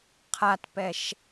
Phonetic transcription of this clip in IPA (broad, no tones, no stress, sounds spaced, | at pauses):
qʰ a t p ɛ ʃ